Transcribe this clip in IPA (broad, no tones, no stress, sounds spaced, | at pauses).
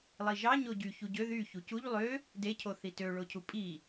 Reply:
lˠ i ʒ ɑ ɲ o ɟ y ç u ɟ ø ð y ç u c u ʎ lˠ ø | d e cʰ o θ i t ø ɭ o cʰ u pʼ i